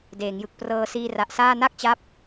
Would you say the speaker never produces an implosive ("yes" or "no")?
yes